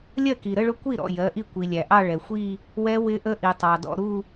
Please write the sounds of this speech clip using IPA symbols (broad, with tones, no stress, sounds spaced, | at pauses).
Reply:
lʲ ɜ˥˩ k i˩ ɾ ə˥˧ ɭ ʊ˦˥ kʷ i˥˩ ɾ ɔ̰˥˩ j ɜ˩˧˩ ʔ i˥˩ kʷ i˩ lʲ æ˩ ʔ ɑ˥˧ ɭ ɛ˩ xʷ i˥˧ | w ɛ˦˥ w ɪ˦˥ ʔ ə˦˥ ʔ i˩ tˤ ɑ˩ d ɔ̰˥˧ ɾ u˥˧